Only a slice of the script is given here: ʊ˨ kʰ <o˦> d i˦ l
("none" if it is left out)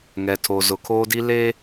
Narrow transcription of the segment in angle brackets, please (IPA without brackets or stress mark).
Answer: oː˦